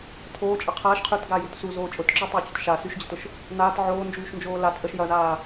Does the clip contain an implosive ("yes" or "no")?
no